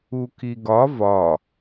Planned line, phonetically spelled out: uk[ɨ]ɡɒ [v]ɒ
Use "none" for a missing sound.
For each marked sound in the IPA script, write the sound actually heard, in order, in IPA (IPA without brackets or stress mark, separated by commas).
i, v